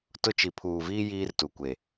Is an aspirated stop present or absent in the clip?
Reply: present